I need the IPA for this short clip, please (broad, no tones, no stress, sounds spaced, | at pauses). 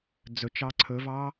d͡z ɵ t͡ʃ ɑ ǀʰ ɵ v ɑ